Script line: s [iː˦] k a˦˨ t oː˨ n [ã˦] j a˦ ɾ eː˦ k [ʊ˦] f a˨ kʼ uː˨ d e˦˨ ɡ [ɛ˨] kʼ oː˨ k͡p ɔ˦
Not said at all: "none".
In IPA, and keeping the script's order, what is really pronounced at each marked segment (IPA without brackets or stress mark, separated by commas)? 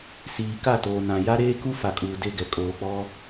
iː˨, ã˨, u˦, ɛ˨